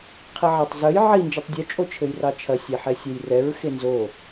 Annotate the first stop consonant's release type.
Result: aspirated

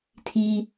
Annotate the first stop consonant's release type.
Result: aspirated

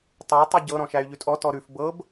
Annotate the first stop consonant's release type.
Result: plain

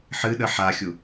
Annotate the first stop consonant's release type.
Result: implosive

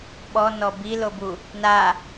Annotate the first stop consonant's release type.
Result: implosive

